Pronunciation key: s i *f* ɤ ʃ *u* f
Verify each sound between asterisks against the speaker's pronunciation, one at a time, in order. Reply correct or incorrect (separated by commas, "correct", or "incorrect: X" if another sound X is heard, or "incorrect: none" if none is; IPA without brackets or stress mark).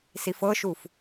correct, correct